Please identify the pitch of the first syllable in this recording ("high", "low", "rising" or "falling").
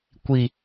low